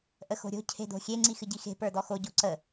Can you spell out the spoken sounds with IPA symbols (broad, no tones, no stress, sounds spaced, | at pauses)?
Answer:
ʔ ə x o̤ ɾʲ o̤ cʰ e̤ d o̤ xʲ e ŋ͡ǀ i x ɨ ɟ i x e̤ p ə˞ d ɔ x o ɟ o ǀ ə